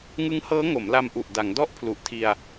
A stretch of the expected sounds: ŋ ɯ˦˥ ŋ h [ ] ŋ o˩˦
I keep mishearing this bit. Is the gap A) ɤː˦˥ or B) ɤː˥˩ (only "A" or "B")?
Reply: A